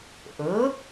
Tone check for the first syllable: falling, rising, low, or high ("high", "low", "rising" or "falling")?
rising